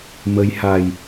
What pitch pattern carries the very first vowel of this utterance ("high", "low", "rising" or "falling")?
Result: rising